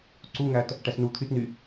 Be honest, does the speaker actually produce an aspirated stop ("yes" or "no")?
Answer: yes